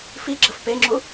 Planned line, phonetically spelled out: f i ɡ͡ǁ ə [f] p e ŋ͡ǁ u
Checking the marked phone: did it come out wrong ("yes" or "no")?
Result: no